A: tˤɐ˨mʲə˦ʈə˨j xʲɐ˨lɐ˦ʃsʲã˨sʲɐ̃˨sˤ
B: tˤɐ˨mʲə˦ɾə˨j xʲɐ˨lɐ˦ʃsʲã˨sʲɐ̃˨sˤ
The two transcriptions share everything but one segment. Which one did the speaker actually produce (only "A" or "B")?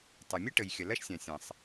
A